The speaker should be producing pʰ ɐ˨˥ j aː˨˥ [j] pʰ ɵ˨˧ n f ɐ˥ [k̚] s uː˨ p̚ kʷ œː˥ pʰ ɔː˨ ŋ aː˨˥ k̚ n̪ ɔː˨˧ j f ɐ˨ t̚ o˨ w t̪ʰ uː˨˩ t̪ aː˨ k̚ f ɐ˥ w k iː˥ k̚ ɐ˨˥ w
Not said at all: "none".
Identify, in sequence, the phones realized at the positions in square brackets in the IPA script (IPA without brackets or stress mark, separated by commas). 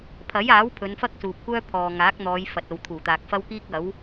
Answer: w, k̚